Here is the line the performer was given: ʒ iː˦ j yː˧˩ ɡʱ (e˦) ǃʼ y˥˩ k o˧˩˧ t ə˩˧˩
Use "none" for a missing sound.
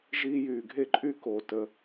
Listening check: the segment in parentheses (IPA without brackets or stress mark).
e˥˩